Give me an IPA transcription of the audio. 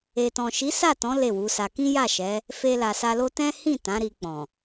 e˨tɔ̃˨ ʃi˨˦sa˦˨tɔ̃˨˦ le˦˨wu˨˦sa˧ kĩ˦ja˦˨ʃɛ˨˦ | fe˧la˨sa˧lo˦ tɛ̃˦hĩ˦˨ tã˨˦ɾi˧k͡pɔ̃˨

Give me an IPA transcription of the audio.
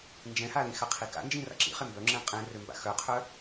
nd͡ʒɛ̃halĩ xaqʰika̰ nd͡ʒĩra̰ǁḭχe mbœŋ͡ǁɛ̃ qʼɛ̃rø mba̰xœqʰœ

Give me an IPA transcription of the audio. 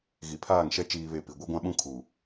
ɣi˨pʰaː˦˨ŋʃɛ˦ t͡ʃiː˨βe˨ pi˨ ɡʷɛ˦ɡʷã˦ɓũ˦ kʰuː˨

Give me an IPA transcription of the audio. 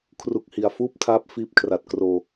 kʰru˦˥k̚hi˨˩a̯ fuː˥˩p̚tʰaː˦˥p̚ fiː˦˥p̚kʰra˨˩t̚ kroː˧

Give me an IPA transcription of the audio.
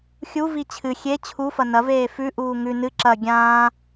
xʲuvi t͡ɕʰɨ xʲe t͡ɕʰufɐ nɐveː fʉʔuː ŋʉ nɨ ǁɐ ɡʲãː

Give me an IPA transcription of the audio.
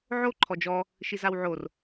ʕo ǃʰɔd͡ʒɔ | ʃizawʕor

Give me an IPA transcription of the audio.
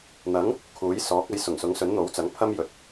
n̪ɐ˨˥ŋ | kʰuː˨˥jsɔː˨˥k̚ ɐ˨˥jsʊ˨˩ŋ sʊ˨˥ŋsɵ˨˥nn̪o˨˥wt͡sɐ˨˥ŋ pʰɐ˥m jɵ˨t̚

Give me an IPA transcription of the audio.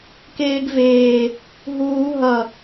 keːɡveː | ɦuː ɦʌ

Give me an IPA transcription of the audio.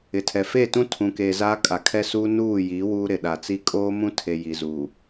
ɪ˨tʰɛ˨ fe˦˨ tũ˦tʰũ˨ keː˨ zaː˦kʼa˨kʰɛ˦suː˦ nuː˦˨jiː˨˦ wuː˦ ɾɪ˨ ɗa˨t͡si˦ kʼoː˦mũ˦tʰe˨ ji˨zuː˨

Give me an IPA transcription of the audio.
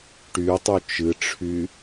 ʈytˤu t͡ʃɨʈ͡ʂʰy

